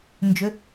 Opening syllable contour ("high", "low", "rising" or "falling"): rising